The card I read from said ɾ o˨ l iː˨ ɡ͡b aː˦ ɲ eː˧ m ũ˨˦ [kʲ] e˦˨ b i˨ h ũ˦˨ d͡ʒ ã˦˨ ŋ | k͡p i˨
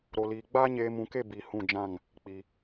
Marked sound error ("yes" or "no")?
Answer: yes